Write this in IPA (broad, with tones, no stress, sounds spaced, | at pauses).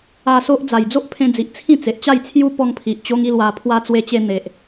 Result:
a˧ s o˦ ʔ d͡z a˨˩ j d͡z o˦ ʔ pʰ ẽ˧ d͡z i˨ ʔ t͡sʰ ĩ˥˧ t͡s e˨ ʔ t͡ɕ a˥˧ j t͡sʰ j u˦ p ɔ˧ ŋ pʰ i˨ ʔ t͡ɕ o˦ ŋ i˦ l w a˧ pʰ w a˦ t͡s w e˧ t͡ɕ e˧ n̪ e˨ ʔ